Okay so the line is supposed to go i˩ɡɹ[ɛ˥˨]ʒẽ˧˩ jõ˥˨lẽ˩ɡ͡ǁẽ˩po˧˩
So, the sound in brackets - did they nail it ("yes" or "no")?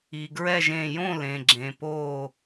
yes